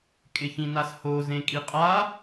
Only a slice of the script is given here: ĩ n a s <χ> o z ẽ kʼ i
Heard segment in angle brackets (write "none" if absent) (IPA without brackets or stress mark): h